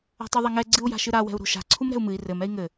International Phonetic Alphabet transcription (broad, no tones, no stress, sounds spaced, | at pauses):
a̤ tˤ u ðˤ ɐ ŋ ɛ ɡ͡ǀ ɨ u̯ j a̤ ʃ ɨ ɾ a w ɛ̤ u̯ ɾ o̤ ʃ a̤ ǀʰ u m ɾ ɛ̤ u̯ m ɨ i̯ r ɘ m ɛ i̯ ŋ ɘ